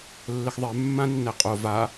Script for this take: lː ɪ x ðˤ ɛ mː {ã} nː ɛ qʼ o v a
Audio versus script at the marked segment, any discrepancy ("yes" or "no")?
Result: no